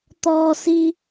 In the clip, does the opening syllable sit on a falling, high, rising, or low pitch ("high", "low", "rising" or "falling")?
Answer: low